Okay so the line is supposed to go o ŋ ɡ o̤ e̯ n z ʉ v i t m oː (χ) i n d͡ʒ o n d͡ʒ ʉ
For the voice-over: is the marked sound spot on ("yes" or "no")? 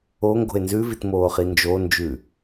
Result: yes